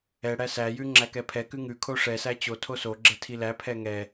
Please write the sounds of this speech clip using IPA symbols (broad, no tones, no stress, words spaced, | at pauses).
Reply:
ɛɽæ sæjʉ ŋ͡ǁækɛpʰɛkʉ ŋʉkʰo ʂɛsæ t͡ɕo tʰosoɡ͡ǁɛ tʰilæpʰɛ ŋɛ